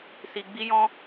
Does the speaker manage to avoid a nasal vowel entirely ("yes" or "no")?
no